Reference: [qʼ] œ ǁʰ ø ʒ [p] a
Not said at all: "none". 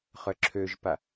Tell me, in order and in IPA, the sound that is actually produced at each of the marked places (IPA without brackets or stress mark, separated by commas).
χ, p